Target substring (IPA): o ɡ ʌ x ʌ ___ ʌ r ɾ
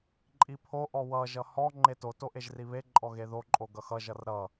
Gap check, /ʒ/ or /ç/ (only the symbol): ʒ